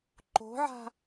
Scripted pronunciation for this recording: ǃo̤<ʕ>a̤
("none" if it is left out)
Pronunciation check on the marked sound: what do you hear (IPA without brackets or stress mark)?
ʕ